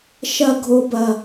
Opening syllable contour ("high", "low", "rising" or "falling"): low